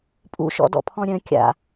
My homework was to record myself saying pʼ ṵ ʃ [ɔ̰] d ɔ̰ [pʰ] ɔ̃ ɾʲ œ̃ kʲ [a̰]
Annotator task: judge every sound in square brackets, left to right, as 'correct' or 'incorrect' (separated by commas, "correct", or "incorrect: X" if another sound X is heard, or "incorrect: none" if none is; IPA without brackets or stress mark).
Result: correct, correct, correct